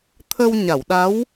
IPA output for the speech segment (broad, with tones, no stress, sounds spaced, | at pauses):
t̪ʰ ə˧ w ɲ a˨˩˨ w ɗ a˧˥ w